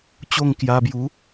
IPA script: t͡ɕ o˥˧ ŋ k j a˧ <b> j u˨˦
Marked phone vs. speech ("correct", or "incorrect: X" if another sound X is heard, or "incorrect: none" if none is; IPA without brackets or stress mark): correct